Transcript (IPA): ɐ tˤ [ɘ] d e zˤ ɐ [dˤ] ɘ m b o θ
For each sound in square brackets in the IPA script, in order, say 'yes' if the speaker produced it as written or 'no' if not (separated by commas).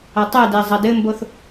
no, no